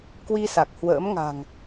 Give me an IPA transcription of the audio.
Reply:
k w i˧ s a˨˩ k̚ h w ə̰ː˧˥ m ŋ a̤˨˩ ŋ

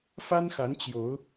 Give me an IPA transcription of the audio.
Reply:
f a˦ n x a˨˦ n t͡ɕ j o˨˦ ʊ̯

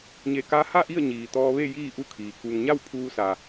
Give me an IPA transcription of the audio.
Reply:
ɲ e˧˩ k a˧˥ h a˥˨ ʔ i˥˨ ə̯ ɲ iː˩ t̪ ɔː˧ ʋ e˥˨ j iː˥˨ ʔ u˥˨ kʰ iː˩ k u˩ ŋ ɲ a˥˨ w pʰ uː˧ s a˩

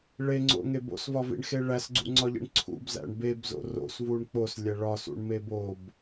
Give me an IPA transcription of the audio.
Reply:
ɭ e ŋ͡ǀ o̰ ŋ e b o̰ s v ɒ v ḭ ɳ x e ɭ æ s ɡ͡ǀ ṵ ŋ͡ǀ ɒ ʎ ḭ ɳ ǀʰ ṵ b z æ̰ ɳ b e b z o̰ r o̰ s v u ɳ k͡p o s lʲ æ ɭ ɒ s ṵ ɳ m e b o b

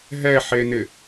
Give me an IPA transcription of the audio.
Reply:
ɦ ɛ ħ e n ɪ

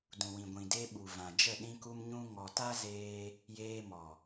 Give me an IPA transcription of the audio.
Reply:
d ũ˨ w ĩ˨ ɡʷ ĩ˨ d e˧ ɓ u˨ v ã˨ d͡ʒ ə˦˨ ɗ ĩ˧ k u˧ m ɲ ũ˧ ŋ ɔ˨ t a˦ z eː˧ | j eː˧ m ɔ˨

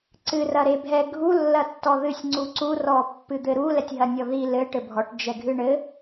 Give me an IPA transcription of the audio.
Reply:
ǀ ɨ r ɐ ɾ e bʱ ɛ ɡʱ u lː ɐ tː ɔ ð ɨ sʲ ŋ͡ǀ u ǀ u r ɔ pː ɨ d̪ ɘ ɾ u l ɛ tʲ ɦ ɐ nʲ ɔ ð i l ɘ ʈ ɘ bʱ ɔ ʈ d͡ʒ ɛ ɡʱ ɨ ɳ ɘ

